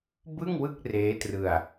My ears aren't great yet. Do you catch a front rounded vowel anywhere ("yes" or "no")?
no